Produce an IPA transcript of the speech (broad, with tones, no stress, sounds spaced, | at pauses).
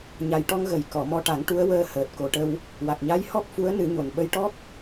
ɲ a˨˩ j ʈ ɔ˧ ŋ ɣ ə˨˩˦ j k ɔ˨˩˨ m ɔ˧ ʈ a˨˩˦ ŋ ʈ u˧˥ ə̯ w əː˧ h əː˨˩ t̚ k o˨˩ ʈ ə˧ w | w a˨˩ k̚ ɲ a˧˥ j h ɔ˦˥ k̚ f u˧˥ ə̯ n ɨ˨˩˦ ɲ o˨˩ n ɓ ə˧˥ j ʈ ɔ˦˥ k̚